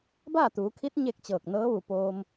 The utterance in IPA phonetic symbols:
b aː˥˨ t̪ uː˩˧ kʰ i˧˥ t̚ ɲ e˥˨ k̚ t͡ɕ ɤː˧˩ k̚ n ɤː˧˥ ʋ u˧˩ p oː˧ m

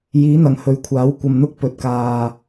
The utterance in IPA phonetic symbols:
j iː˨˥ n̪ ɐ˨˩ ŋ h ɵ˨˥ ɥ kʷʰ aː˨˥ w kʷ ɐ˨ m n̪ ʊ˥ k̚ p ɵ˨ t̚ k aː˨

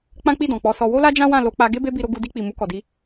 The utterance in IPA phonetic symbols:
k͡p ã˦ k͡p i˦˨ d ɔ̃˨ k͡p ɔ˨˦ s ɔ˧ w o˦ l a˦ d͡ʒ ã˦ w ã˦˨ l o˧ k͡p a˧ ɡ e˦ b e˦ b i˧ ɾ o˧ ɡ u˧ d i˧ k͡p i˨ m u˧ k ɔ˨ d i˧

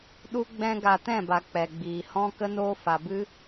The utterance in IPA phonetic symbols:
ɗ u˦ ɡ͡b ɛ̃˦ ɡ a˧ t ɛ̃˦˨ b a˨ k͡p ɛ˨ ɡ͡b iː˨ h ɔ̃˦ k ə˦ n oː˦ f a˨ b ɨ˦

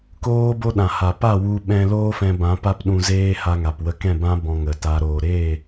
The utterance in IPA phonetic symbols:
k oː˦ b o˦ ɗ ã˨ h a˨ p a˦˨ w u˧ ɓ ɛ̃˧ l oː˦ f ɛ̃˧ b ã˨˦ p a˦ p ɗ ũ˧ z eː˦ h a˧ ŋ a˨ p w ə˦ k ɛ̃˦˨ b ã˦ b ɔ̃˧ ŋ ə˨ t a˧ ɾ oː˨ ɾ eː˦˨

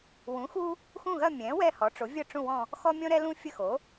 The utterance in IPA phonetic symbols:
w ũ˩˥ x u˦ | x ũ˦˨ ɣ ɐ˦˨ mʲ ɛ̃˩˥ w ɛ˦˨ h ɔ˩˥ ʈ͡ʂ o˩˥ vʲ ə˦˨ ʈ͡ʂ ũ˦˨ w ɔ̃˦˨ | x ɔ˦ mʲ ɔ̃˦ ɾ ɛ˦ l ũ˦ fʲ ə˦˨ x o˩˥

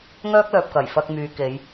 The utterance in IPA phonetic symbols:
ŋ œː˥ k̚ l œː˨ p̚ k ɐ˨˩ j f ɐ˧ k̚ m yː˨˧ k e˨˧ j

